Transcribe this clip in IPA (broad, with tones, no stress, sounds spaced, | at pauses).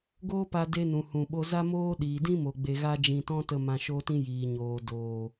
ɡ oː˦ p a˧ d e˦ n ũ˨ h ũ˨ ɓ o˦ z a˦ m oː˦ ɗ iː˨ d ĩ˦ m o˨ ɡ͡b e˧ ɣ a˦ d͡ʒ ĩ˧ t ɔ̃˦ t ə˧ m ã˧ ʃ o˦ t ĩ˦ j iː˨ ɲ oː˨ d oː˨